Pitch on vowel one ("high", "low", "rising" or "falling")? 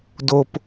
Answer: low